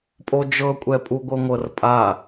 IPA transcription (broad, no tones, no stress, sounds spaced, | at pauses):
pʼ o d͡ʒ ɤ kʷʼ ɛ pʼ u ɡʷ ɤ ŋʷ ɤ r pʼ a